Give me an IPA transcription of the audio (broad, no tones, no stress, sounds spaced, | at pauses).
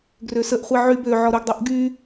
ɡ r ø s ə ʔ χʷ i ʕ y b ø ʕ ɔ ɾ u ɡ dˤ u ʔ ɡ y